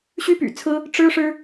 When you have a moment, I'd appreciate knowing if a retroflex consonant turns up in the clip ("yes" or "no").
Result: yes